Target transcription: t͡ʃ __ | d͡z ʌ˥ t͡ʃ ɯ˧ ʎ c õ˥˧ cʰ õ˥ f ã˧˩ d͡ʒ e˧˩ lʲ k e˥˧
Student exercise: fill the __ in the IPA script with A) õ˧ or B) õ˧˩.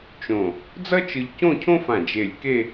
B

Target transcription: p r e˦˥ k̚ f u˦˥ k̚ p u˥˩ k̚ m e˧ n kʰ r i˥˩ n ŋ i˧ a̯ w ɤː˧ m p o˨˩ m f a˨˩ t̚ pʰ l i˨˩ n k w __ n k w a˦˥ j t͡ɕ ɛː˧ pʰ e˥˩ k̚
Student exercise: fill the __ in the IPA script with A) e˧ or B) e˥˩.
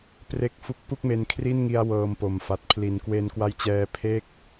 A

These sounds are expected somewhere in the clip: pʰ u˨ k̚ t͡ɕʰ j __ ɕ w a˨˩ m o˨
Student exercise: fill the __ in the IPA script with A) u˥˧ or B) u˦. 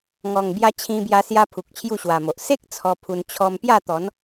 A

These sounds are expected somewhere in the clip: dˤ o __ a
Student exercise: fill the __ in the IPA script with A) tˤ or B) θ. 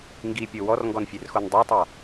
A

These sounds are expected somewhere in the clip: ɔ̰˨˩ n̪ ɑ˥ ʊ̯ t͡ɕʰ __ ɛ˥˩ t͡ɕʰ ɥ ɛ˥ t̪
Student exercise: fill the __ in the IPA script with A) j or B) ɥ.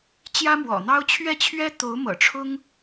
B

